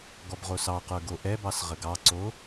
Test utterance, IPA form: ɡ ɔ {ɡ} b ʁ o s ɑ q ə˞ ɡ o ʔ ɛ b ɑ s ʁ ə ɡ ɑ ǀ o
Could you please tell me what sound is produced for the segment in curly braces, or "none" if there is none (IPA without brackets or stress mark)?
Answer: none